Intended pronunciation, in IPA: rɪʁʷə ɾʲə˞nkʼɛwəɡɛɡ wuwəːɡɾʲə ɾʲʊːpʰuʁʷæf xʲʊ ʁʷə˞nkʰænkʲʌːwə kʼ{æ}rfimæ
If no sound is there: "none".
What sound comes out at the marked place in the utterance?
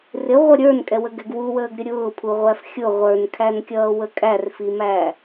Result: æ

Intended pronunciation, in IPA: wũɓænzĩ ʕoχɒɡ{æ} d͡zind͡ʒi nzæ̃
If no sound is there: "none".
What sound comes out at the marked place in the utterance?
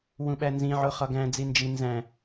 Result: æ̃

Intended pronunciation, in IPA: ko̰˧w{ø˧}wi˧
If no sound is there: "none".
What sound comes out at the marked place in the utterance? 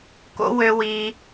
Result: ø˧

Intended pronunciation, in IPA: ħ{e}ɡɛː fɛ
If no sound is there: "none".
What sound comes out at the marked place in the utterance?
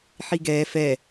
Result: i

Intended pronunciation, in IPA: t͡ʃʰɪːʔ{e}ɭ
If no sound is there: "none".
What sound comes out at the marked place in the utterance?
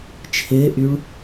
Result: y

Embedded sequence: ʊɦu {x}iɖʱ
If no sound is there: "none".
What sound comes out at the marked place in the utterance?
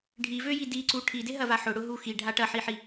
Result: x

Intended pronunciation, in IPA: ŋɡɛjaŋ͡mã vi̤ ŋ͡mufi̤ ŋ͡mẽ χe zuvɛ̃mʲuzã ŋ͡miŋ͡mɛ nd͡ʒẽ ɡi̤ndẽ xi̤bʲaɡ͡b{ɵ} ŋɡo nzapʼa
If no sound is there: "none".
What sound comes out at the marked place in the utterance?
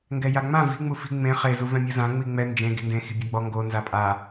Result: ɔ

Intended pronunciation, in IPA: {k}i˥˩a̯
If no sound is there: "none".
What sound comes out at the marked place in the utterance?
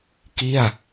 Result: k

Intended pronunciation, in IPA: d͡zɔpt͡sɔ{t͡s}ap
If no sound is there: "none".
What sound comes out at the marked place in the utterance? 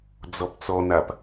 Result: n̪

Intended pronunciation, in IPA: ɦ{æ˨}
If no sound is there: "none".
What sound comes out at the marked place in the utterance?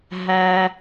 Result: æ˦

